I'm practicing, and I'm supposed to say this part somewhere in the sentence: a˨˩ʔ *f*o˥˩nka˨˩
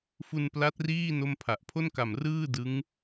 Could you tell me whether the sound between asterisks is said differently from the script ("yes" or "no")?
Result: yes